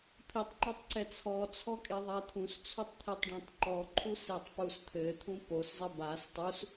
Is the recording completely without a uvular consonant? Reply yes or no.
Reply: yes